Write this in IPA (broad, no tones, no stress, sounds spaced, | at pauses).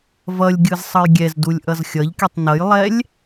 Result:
v ʌ lʲ ɡʲ ɯ z sˤ ʌ j ɡʲ ɛ z d u lʲ ʔ ʌ z xʲ ʌ ʎ k i tˤ n ʌ j lˠ ɛ lʲ